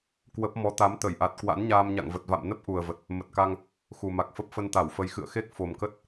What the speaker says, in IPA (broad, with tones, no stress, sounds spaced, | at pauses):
k w ə˦˥ p̚ m ɔ˨˦ t̪ a˨˦ m t̪ ə˧˩ j ʔ a˨˩ t̚ k w a̰˧˥ n ɲ aː˧ m ɲ a̰˧˨ ŋ v ə˨˩ t̚ v a̰˧˨ m n ə˦˥ p̚ ʔ u˨˩ ə̯ v ə˨˩ t̚ | m ə˨˩ t̚ k a˧ ŋ | x u˨˩ m a˨˩ k̚ f ə˦˥ p̚ f ə˧ n t̪ a˧˩ w f ə˨˦ j x ɨ̰˧˨ ə̯ x e˦˥ k̚ f o˨˩ m k ə˦˥ t̚